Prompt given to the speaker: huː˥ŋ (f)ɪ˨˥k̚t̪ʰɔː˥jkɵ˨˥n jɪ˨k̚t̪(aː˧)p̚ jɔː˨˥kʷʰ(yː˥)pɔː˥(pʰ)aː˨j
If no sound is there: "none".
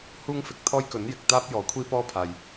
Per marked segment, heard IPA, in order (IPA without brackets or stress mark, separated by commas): f, aː˥, iː˥, pʰ